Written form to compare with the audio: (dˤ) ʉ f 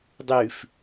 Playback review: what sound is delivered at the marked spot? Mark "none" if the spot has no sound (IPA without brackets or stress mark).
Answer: dˤ